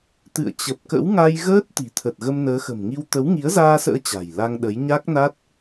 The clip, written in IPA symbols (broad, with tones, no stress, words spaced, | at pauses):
t̪ɨ̰˧˨ə̯ t͡ɕə˨˩p̚kə̰˧˥wŋa˧j ɣəː˦˥t̚ t̪i̤˨˩t̪ʰə˨˩t̚ ɣə˧mnəː˨˦xə̤˨˩mŋi˧w t̪ə˨˦wŋi˨˦ə̯zaː˧sə̰ː˧˥ t͡ɕa̤˨˩jla˧ŋɗə˨˦j ɲa˦˥k̚na˦˥t̚